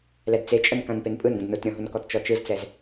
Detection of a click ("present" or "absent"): absent